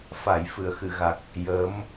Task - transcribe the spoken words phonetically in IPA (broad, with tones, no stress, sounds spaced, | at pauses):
f a˨˩˦ j f ɨ˨˩˨ ə̯ x ɨ˨˩˨ ɣ a˨˩ k̚ | j əː˧˥ m